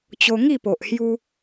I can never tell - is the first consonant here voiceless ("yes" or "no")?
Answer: yes